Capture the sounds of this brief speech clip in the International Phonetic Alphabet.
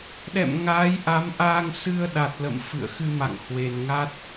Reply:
ɗ ɛ̰˧˨ m ŋ aː˨˦ j ʔ a˨˦ m ʔ aː˧ ŋ s ɨ˧ ə̯ ɗ a˨˩ t̚ l ə̰˧˨ m f ɨ̰˧˨ ə̯ x ɨ˧ m a̰˧˨ ŋ h w e˨˩ n ŋ a˦˥ t̚

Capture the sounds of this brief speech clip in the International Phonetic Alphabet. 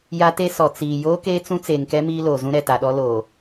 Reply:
j a˦ t e˦ s ɔ˨ t͡s iː˨ j oː˦ k eː˦ t͡s ũ˦ t͡s eː˨ ŋ k ɛ˦ m iː˦ l oː˨ z ũ˦ ɾ ɛ˨ t a˨ ɗ ɔ˦ l oː˨

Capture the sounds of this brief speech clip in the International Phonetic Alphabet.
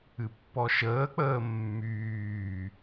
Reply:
ɨ pː ɔ ʃ əː k͡p əː mː yː

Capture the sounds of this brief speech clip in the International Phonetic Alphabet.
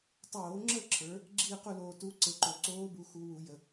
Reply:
tˤ oː˧˩˧ ŋ͡ǁ ə˥˨ ǁʰ ə˞˩˧ | ɡ͡ǁ iː˥˨ q u˥˨ l oː˨˩ t u˧˥ ǀ e˨˩ ǃ o˨˩ ǀ oː˧˥ b u˩˧ x u˩˧ w u˧˩˧ j ə˨˩

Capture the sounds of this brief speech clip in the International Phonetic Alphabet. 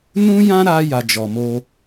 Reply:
n ũ˦ j ã˦ ɾ a˦ j a˧ d͡ʒ ɔ˧ m o˦

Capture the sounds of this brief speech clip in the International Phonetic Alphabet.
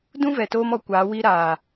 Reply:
d ũ˦ v ɛ˨ t oː˧ m ɔ˧ kʷ aː˨˦ w i˦ ɾ aː˨

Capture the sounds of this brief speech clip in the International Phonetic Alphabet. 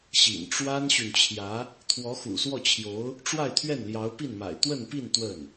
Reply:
ɕ ḭ˨˩ n ʈ͡ʂ w a˥ n ɕ y˨ n t͡ɕʰ j ä˧˥ | t̪ʰ w ɔ˧˥ x ṵ˨˩ s w ɔ˥˩ t͡ɕʰ j o˧˥ ʊ̯ | ʈ͡ʂ w a˥˧ ɪ̯ t̪ʰ ɥ ɛ˥˩ n l j ɑ˧˥ ʊ̯ p i˥˩ n m a̰˨˩ ɪ̯ t̪ w ə˥˧ n p i˥˧ n t̪ w ə˥˩ n

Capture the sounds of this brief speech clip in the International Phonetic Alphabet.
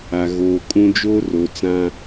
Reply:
a˨ ɣ oː˨ kʼ ũ˦ d͡ʒ oː˦ r o˨ t͡s ã˦

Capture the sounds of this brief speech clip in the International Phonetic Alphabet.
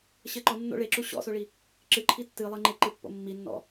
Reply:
ɕ ɘ ǃ ɔ nː o̰ ɭ e ǁ u ɕ ɔ̰ s o ɭ i | ǁ ɨ ǃʰ i tː ɨ lˠ e ŋ͡ǃ e ǃ ɨ pː o̰ mː i nː ɔ̰

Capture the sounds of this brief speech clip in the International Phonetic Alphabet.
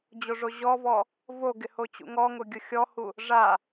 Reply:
d͡ʑ o ʐ o ʑ ɔ v ɔ | v o ɡ ɪ h o t͡ɕ ṵ ŋ ɔ ŋ ʊ ɡʲ ʊ xʲ ɔ h u | ʐ a

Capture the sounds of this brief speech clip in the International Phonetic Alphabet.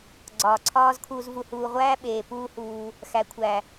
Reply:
ɡ͡ǀ ɒː˨ ǀʰ ɒː˦ z kʰ uː˧ z v u˧ h uː˧ ʁʷ æː˦ ɓ eː˨ p uː˦ h uː˧ | x æ˨ kʷʰ æ˨

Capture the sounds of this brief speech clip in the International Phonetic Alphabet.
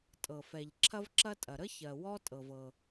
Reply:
tʼ ɤ˩ f ɛ˩ ʎ ǁʰ ɐ˥ v ǁ ɐ˥ tʼ ɐ˩ ɾ ə˥ ç ɜ˩ w ɔ˥ tʼ ɤ˩ v ɤ˩

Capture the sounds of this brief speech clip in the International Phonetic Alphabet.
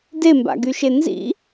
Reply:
d e m b a̰ ɡ y ʃ e n z ḭ

